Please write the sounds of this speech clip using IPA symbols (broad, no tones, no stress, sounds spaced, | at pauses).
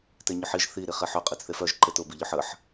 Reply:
t e ɲ ʊ ħ i ʒ θ i ɾ i χ e ħ œ qʼ i t͡s θ e f œ ʒ ǃ e t ʊ b i ʎ ʊ ħ ə ħ